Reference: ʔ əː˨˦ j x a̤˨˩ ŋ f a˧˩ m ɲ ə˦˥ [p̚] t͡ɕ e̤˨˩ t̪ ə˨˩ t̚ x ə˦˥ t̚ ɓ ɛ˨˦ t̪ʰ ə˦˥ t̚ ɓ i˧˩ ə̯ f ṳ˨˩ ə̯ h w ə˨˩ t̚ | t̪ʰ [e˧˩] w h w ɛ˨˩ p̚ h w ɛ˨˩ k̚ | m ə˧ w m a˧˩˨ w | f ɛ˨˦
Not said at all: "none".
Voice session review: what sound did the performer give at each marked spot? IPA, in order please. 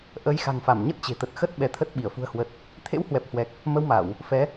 t̚, ḛ˧˥

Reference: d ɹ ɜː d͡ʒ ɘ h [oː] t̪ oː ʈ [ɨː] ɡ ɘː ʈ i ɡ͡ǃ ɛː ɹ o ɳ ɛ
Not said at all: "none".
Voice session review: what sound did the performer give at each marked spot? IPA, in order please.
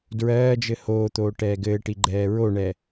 oː, ɛː

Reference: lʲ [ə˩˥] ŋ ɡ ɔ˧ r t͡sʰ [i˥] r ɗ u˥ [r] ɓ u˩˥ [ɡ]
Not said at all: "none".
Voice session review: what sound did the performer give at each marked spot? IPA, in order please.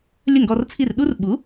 ə˥˩, i˥˩, r, none

